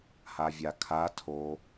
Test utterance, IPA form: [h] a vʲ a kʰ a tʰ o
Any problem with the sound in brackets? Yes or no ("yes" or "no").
no